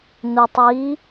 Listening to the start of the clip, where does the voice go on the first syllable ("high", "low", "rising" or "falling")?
low